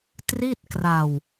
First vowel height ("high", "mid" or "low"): high